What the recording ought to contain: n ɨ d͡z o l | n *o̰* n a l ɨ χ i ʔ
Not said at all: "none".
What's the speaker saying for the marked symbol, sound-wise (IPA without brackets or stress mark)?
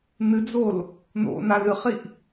o̰